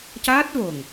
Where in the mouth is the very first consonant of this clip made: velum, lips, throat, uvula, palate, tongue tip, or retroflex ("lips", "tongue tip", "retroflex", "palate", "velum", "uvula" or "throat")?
palate